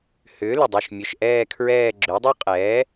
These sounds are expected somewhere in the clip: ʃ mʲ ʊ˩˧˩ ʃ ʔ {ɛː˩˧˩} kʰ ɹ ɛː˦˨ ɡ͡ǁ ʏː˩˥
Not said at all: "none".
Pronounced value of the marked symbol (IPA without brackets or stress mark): ɛː˦˨